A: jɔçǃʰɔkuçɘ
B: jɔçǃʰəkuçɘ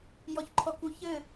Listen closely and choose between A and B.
A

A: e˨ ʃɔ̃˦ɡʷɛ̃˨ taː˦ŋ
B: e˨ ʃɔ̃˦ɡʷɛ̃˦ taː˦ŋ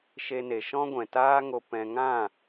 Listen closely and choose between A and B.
A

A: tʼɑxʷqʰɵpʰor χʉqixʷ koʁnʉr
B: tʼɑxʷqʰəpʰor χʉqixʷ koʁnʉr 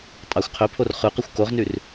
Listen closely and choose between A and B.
A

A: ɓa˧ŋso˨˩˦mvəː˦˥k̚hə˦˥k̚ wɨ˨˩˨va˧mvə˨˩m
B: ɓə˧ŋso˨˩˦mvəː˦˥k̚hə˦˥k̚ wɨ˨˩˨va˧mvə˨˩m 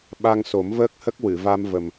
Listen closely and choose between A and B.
A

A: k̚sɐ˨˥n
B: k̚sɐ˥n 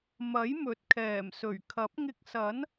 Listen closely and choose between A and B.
A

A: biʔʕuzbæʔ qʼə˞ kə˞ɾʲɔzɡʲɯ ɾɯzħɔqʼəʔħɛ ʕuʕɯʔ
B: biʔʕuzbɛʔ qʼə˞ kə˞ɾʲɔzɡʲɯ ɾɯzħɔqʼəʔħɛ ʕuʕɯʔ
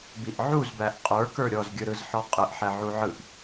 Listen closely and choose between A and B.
A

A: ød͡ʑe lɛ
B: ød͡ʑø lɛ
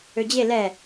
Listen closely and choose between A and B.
A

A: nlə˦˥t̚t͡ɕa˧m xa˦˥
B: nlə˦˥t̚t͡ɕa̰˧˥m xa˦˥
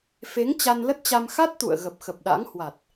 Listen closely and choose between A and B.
A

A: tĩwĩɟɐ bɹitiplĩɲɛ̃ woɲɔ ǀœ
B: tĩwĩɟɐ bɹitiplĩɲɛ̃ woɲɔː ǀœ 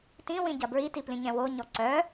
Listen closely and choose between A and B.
A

